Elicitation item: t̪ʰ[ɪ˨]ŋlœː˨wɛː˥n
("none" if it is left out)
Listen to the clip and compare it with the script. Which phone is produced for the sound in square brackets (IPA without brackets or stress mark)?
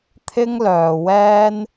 ɪ˥